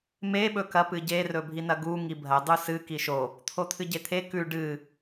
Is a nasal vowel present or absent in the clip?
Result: absent